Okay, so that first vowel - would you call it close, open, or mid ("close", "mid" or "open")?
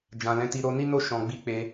open